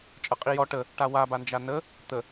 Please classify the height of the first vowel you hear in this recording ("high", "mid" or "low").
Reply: mid